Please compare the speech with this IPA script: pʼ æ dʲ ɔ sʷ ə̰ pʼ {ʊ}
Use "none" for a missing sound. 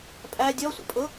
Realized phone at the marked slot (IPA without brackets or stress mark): ʊ